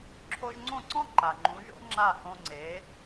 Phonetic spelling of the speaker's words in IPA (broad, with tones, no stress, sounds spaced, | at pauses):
ǁʰ o˧ ʒ ŋ͡ǀ õ˥˩ ǀ ɔ̃˥ ǃ a˩ ŋ͡ǃ ũ˩˥ ʒ o̰˥ ŋ͡ǁ a˥˩ h õ˧ ŋ͡ǀ e˩˥